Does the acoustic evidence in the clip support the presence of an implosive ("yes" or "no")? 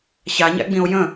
no